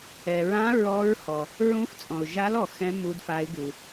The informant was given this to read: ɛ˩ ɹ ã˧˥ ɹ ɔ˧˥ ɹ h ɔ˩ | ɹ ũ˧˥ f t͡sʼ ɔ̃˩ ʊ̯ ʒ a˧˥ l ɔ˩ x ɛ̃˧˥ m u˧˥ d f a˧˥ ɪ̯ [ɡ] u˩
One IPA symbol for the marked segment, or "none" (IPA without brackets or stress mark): ɡ